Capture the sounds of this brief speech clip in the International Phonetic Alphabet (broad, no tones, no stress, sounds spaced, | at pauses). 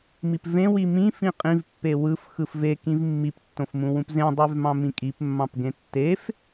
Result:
m i p v ẽ w i m ĩ f ĩ qʼ ĩ v pː e w ɯ f x ɯ f v e k ĩ v mː i p tː õ f m ũ w ũ p z ẽ dˤ y v m ɑ̃ m ĩ kʼ i p mː ɑ̃ p ɡ ẽ tː e f